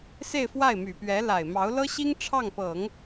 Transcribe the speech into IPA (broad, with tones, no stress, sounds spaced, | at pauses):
s e˥˧ ɪ̯ f w a˥˩ ɪ̯ m y˨˩ p ɥ ɛ˧˥ l a˨˩ ɪ̯ m ɑ˧˥ ʊ̯ l ɤ˥ ɕ i˥ ŋ ʈ͡ʂʰ ɑ˥˩ ŋ p ɤ˨˩˦ ŋ